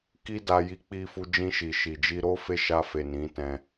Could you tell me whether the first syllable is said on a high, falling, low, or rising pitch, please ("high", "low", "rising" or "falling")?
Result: high